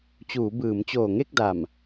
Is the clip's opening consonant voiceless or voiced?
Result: voiceless